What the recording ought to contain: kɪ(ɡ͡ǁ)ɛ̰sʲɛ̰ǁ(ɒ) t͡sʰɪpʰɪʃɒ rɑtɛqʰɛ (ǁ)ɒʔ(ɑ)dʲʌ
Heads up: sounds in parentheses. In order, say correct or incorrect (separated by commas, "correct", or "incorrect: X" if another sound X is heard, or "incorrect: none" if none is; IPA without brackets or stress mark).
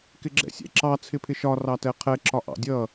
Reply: correct, incorrect: ɑ, correct, incorrect: ɑ̰